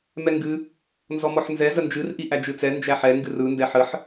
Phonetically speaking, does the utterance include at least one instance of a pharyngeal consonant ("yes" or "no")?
yes